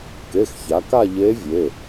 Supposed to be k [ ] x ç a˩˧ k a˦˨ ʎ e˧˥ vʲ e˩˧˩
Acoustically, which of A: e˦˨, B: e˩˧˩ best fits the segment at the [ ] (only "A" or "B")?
B